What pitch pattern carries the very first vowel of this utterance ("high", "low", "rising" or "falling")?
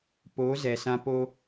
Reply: rising